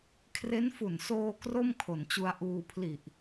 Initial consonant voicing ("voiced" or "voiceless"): voiceless